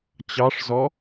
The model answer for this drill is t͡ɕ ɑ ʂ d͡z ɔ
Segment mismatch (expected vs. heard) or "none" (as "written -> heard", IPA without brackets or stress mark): d͡z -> z